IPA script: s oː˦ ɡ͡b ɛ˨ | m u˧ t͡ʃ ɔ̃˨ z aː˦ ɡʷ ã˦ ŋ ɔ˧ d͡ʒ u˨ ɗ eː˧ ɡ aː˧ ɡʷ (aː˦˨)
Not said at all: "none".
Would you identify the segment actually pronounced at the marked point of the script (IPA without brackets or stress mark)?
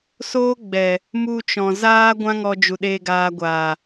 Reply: aː˨